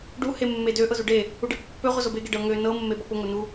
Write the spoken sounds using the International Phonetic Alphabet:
ɖ u h e mː e d ø ʔ ɤ z u ɖ e | u ɖ e p ʊ pː ø ʁʷ ə z o b e ɡ e ɖ ɤ ŋ ø n ɤ mː e b ɔ p ʊ ŋ o n u

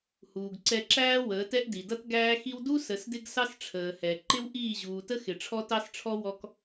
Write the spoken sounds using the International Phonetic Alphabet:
h uː˨ ɡ ǀ ɛ˧ ǁ æː˦ w əː˨˦ t ɛ˦ ʔ d i˨ d ʌ˦ t ɡ æː˦ x i˦ w d u˦ s ə˨˦ s d ɪ˦ ɡ s ɑ˦ s ʈ͡ʂʰ əː˨ h ɛ˨ ǃ ɪ˦ w ʔ iː˦˨ ʑ uː˨ t ə˦ x ɪ˨ ʈ͡ʂʰ ɔ˦ t ɑ˦ s ʈ͡ʂʰ ɔ˦ w ɔ˦ k

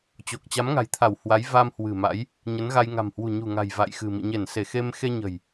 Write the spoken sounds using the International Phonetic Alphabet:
t͡ɕ o˨˩ k̚ t͡ɕ a˨˦ m ŋ a̤˨˩ j t̪ʰ a˧˩ w h w a˨˦ j v a˧ m h w ɨ̤˨˩ m a̰˧˥ j | ɲ ə˨˦ n ɣ a˧ j ŋ a̤˨˩ m h w ṳ˨˩ ɲ ṳ˨˩ ŋ a̤˨˩ j v a̰˧˨ j x ɨ̤˨˩ m ḭ˧˨ ɲ e˧˩ n s e˧˩ x e˧ m x e˧ ɲ ə̤˨˩ j

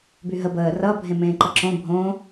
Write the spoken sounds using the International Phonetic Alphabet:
b y ɦ ə b əː r ʌ bʱ ẽ m ẽː ǃ ʌ ǁ õ bʱ õː

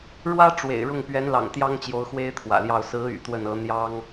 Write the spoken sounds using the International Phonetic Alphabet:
ɻ w ä˥ ʈ͡ʂ w ḛ˨˩ ɪ̯ ɻ ʊ˥˩ ŋ p ɥ ɛ˧˥ n l ɑ̰˨˩ ŋ t̪ j ɑ˥ ŋ t͡ɕ j o˧˥ ʊ̯ x w e˥ ɪ̯ t̪ʰ w ä̰˨˩ l j ɑ˥˩ ʊ̯ s ɹ̩˧˥ y̰˨˩ t̪ w ə˥˩ n ɤ˧˥ n̪ j ɑ˥ ŋ

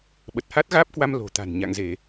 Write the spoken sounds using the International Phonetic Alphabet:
ɓ ə˨˩ t̚ h a˦˥ t̚ ɣ aː˦˥ p̚ k w a˧ m l o̤˨˩ t̪ a̤˨˩ n ɲ a̰˧˨ ŋ z e˧˩˨

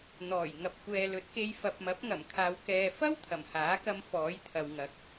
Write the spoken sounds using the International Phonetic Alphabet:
n̪ ɔː˨˩ j ŋ ɐ˨ p̚ kʷ ɛː˨ l ɵ˨˥ t̚ k e˧ j f ɐ˨ p̚ m ɐ˨˥ p̚ ŋ ɐ˨˩ m kʰ aː˨ w k ɛː˨ f ɐ˥ w t̪ʰ ɐ˨˩ m h aː˨˥ k ɐ˧ m f ɔː˨˥ j t̪ʰ ɐ˨ w ŋ ɐ˨˥ k̚

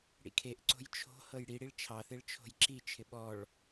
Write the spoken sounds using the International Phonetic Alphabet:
ɽ ḭ kʰ e ʔ ǀ o̤ j t͡ʃʰ o̤ h ɤ j ɽ i ɽ i ɭ t͡ʃʰ ɑ θ e ɭ t͡ʃʰ o̤ j ǁ i t͡ʃʰ ɪ ɓ ɔ ɭ

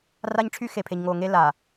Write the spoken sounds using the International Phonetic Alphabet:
r a˦ ɲ ʈ͡ʂʰ y˦ x e˨ pʰ e˨ ɲ ŋ oː˨ ŋ e˦ l a˨

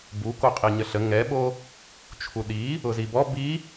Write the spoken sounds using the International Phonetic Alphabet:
b u k o qʼ i ɲ ə ɬ ə ŋ ɛ ɓ o | t͡ʃʰ u ɗ i | ʊ z i b ɔ b i

